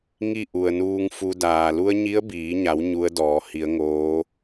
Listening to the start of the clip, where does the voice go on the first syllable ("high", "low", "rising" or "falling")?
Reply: falling